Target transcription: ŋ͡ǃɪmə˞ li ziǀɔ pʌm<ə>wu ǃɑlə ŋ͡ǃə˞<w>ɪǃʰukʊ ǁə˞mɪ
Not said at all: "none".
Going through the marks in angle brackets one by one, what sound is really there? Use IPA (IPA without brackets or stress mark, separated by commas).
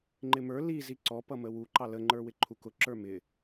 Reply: ə, w